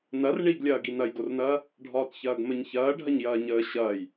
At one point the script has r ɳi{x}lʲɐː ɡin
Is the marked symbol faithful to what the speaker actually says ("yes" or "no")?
no